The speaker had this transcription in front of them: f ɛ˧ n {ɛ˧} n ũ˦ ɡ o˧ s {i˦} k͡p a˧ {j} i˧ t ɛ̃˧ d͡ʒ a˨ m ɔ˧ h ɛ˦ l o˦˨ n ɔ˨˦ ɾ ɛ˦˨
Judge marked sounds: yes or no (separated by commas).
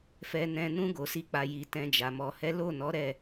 no, yes, yes